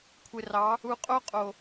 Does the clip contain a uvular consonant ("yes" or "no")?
yes